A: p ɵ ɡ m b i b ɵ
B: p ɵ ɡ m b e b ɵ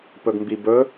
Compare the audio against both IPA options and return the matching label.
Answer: A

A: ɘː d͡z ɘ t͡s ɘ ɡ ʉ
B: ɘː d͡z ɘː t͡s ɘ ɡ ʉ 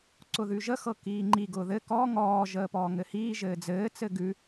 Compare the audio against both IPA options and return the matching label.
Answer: B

